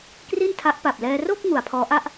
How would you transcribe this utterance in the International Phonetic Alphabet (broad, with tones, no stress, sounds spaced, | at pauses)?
k r i˥˩ n tʰ a˦˥ ʔ p a˨˩ p̚ l ɛː˧ r o˥˩ k̚ ŋ u˩˦ a̯ pʰ ɔː˦˥ ʔ a˥˩ ʔ